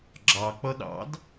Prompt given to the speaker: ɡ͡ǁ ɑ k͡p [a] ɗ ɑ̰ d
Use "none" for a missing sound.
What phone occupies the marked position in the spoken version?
ʌ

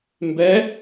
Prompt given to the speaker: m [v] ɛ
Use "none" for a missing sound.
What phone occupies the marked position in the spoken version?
b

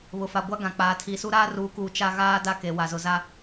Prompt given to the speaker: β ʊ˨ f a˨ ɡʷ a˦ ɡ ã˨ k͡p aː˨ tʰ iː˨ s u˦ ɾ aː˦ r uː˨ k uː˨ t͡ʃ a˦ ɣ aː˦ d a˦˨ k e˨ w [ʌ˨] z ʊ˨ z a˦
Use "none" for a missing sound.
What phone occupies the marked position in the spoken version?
a˨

